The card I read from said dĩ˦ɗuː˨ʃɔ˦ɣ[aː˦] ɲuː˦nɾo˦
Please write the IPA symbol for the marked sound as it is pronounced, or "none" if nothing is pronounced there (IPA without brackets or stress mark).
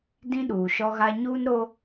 a˦